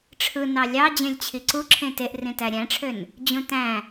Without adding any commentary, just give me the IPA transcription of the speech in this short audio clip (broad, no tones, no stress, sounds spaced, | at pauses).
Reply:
ʈ͡ʂʰ ɯ n ɑ lʲ ɑ d͡ʑ ẽ lʲ t͡ɕʰ i ǀ u ǁʰ ẽ t e ʔ r ĩ t æ ɾʲ æ̃ ʈ͡ʂʰ ø n | d͡ʑ ũ t æ̃